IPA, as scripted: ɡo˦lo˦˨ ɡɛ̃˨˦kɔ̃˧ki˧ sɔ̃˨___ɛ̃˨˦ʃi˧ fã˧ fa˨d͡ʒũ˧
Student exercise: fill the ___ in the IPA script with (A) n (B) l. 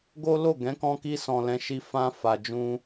B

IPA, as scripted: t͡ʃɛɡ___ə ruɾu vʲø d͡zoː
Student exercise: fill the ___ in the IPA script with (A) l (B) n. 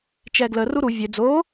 A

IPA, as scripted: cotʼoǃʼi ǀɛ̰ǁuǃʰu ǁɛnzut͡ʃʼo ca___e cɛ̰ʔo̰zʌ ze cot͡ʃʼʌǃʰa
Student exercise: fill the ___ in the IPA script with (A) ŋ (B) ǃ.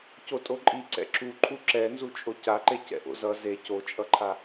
B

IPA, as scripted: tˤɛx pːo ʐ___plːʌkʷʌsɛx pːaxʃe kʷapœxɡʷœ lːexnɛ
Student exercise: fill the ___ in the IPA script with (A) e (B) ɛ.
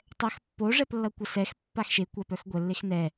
B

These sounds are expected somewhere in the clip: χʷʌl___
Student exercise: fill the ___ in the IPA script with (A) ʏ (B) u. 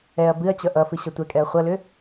A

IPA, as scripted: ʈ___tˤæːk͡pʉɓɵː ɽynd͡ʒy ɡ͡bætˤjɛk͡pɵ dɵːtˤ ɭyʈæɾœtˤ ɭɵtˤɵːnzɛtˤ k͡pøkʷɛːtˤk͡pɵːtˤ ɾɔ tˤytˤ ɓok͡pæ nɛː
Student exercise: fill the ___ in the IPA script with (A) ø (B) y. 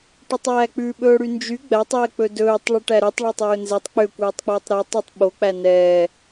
B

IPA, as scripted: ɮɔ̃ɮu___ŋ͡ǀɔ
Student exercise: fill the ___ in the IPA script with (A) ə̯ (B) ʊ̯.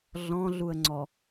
A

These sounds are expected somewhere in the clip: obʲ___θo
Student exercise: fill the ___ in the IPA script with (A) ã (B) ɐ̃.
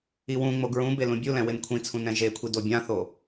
A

